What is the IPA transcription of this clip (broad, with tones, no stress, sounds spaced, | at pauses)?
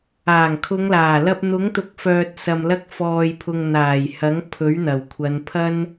aː˨˩ ŋ kʰ ʊ˨˧ ŋ l aː˨˩ l ɐ˧ p̚ n̪ ʊ˨˥ ŋ t̪ ʊ˨˥ k̚ f œː˨ t̚ s ɐ˨ m l ɐ˧ k̚ f ɔː˨ j pʰ ʊ˨ ŋ n̪ aː˨˩ j h ɐ˨˥ ŋ pʰ ɵ˨˥ ɥ n̪ ɐ˨˩ w kʷʰ ɐ˨˧ n pʰ ɐ˥ n